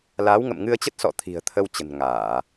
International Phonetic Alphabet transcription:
laː˨˦wŋə̰˧˨mŋɨ˧ə̯t͡ɕə˦˥t̚ sɔ̰˧˨ t̪ʰi̤˨˩ə̯t̪ʰə˧wt͡ɕə̤˨˩n ŋaː˧˩˨

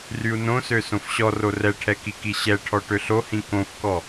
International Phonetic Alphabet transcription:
ryu̯nõsø sõfɕɔro rɛʈʰɛ kikiɕɛʈʰɔ ʈøɬohĩ kõfkɔ

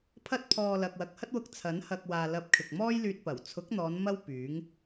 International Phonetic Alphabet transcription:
pʰɐ˧t̚pʰɔː˨ lɐ˨k̚wɐ˨k̚hɐ˥t̚wʊ˧k̚ t͡sʰɐ˨˥n hɐ˨k̚waː˨lɐ˨˥p̚ kʰɪ˨k̚mɔː˥jlyː˧t̚pɐ˨˩w t͡sʰʊ˨˥k̚n̪ɔː˨˧n mɐ˥w pyː˨˥ŋ

